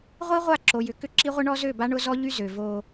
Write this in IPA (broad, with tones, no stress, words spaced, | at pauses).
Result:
ʁʷi˦ʁʷa˦˨ǁo˨ jʏ˨ kʏ˦ǁi˦ʁʷɪ˦ ɳɔ˦zø˦˨ba˦ ɳʊ˦ zɔ˦ʎy˦ zø˨vo˦